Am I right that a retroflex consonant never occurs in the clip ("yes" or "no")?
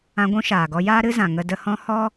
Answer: yes